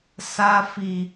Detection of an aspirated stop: absent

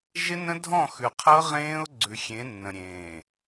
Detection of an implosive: absent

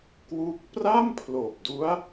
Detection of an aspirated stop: present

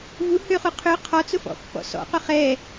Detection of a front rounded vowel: present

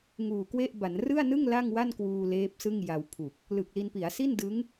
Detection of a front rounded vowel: absent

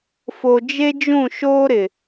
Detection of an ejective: absent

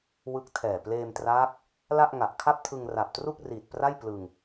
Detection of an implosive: absent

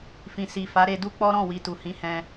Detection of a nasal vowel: present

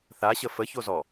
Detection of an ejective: absent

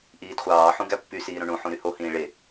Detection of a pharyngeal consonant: present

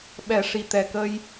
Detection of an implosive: present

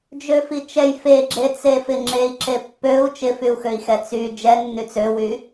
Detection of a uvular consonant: absent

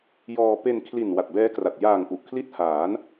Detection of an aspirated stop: present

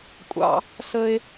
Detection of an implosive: absent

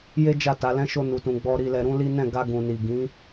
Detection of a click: absent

